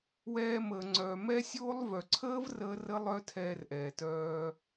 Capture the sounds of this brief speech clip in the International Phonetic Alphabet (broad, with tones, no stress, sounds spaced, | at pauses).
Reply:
w ɛː˧ m əː˨ ŋ͡ǀ œː˨ m ɛ˦ sʲ oː˦ lˠ v œ˨ ǀʰ əː˦ v r əː˦ r ə˦ lˠ œ˦ tʰ ɛː˧ r ʔ ɛː˨ t œː˧